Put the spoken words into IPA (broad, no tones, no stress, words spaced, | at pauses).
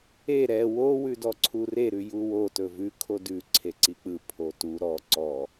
e ɾɛ wo wʉdɔǀʰure ɾʉjuwo tɵvʉ kʰodʉ ǀʰeǀik͡pɯ pʰotu ɾɔ ǀɔ